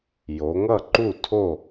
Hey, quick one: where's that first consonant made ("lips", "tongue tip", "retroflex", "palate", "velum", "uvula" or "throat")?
palate